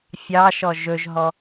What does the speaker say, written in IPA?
fʲ ɑ ʃ ɔ ʒ ɵ ʒ ɦ ɔ

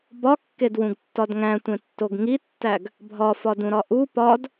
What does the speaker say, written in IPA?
b ɒ kː e d w ũ ɡ tː ɒ d ŋ æ̃ tʷ ẽ tː o ɡ ŋ i tː æ ɡ | bʱ ɒ f ɒ d ũ ɾ ɒ ʔ u p ɒ d

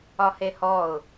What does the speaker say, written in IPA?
ɒ h e h ɔ ʊ̯

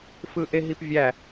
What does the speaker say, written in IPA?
f ɯ ʔ e ɦ i p vʲ æ

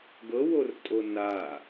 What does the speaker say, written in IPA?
ɡ ɤ w o r tʼ o n a

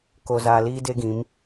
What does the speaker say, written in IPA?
k o˨ z aː˨ l iː˦ d e˦ ɡ ĩ˨˦ m

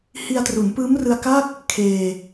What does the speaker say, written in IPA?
h i˧ a̯ t r u˩˦ n p ɯː˦˥ m r ɯ˧ a̯ k a˥˩ k̚ | kʰ eː˧

